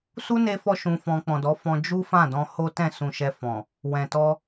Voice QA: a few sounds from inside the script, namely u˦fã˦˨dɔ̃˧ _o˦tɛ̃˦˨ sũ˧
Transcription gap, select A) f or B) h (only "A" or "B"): B